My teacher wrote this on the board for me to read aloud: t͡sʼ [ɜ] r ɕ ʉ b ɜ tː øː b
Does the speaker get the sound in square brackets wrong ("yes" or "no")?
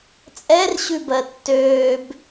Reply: yes